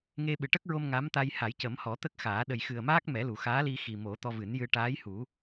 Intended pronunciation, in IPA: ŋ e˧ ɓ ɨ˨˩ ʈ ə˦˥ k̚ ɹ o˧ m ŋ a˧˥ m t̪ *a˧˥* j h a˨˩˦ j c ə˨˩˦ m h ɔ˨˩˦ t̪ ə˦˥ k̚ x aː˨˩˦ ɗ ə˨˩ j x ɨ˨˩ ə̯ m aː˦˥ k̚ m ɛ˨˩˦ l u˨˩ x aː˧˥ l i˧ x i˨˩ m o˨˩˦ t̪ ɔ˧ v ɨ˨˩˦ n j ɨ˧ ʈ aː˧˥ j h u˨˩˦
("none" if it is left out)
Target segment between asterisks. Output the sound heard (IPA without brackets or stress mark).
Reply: a˧